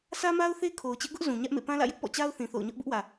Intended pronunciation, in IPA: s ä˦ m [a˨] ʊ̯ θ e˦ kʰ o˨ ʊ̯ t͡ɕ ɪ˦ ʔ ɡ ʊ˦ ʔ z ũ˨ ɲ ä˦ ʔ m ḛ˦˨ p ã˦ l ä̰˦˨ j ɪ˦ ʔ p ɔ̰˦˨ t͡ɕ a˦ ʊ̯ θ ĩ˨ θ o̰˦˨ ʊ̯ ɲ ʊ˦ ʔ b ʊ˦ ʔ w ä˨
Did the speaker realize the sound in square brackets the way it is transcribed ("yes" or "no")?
no